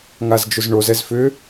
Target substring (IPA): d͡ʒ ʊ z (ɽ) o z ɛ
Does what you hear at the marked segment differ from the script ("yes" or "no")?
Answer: yes